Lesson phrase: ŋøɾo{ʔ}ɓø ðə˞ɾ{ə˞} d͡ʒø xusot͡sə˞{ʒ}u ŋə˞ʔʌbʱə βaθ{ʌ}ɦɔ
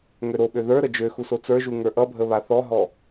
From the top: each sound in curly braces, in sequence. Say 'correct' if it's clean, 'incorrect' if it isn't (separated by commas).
incorrect, incorrect, correct, incorrect